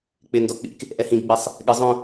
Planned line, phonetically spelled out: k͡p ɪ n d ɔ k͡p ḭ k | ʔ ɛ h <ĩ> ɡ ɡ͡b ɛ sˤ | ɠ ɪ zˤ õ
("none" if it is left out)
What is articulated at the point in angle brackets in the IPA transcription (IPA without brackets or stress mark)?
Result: ĩ